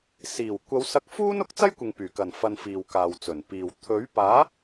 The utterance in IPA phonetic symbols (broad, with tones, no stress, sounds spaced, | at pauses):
s iː˨˩ w kʷ ɐ˨˧ w s ɐ˧ k̚ f uː˥ n ʊ˨˥ k̚ t͡s ɐ˥ j kʷ ɪ˨ ŋ p yː˨˩ k ɐ˨˩ n f ɐ˨ n f iː˨ w k aː˨ w t͡s ɵ˨˩ n p iː˨ w t̪ʰ ɵ˨˥ ɥ p aː˨˥